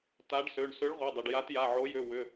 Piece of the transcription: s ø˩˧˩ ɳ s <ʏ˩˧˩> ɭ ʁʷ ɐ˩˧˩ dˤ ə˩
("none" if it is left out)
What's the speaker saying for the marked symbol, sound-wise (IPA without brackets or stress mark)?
ʏ˨˥